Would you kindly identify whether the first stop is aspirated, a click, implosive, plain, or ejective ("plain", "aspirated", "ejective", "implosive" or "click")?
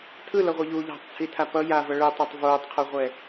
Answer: aspirated